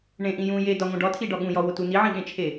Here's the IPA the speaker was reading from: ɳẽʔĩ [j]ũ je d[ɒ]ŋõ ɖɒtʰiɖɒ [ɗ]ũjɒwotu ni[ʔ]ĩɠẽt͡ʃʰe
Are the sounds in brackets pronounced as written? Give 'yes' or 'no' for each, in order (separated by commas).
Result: yes, yes, no, no